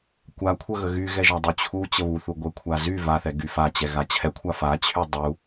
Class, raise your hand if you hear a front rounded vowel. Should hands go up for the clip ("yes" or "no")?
yes